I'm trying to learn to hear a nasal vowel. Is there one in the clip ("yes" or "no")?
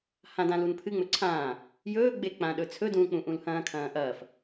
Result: yes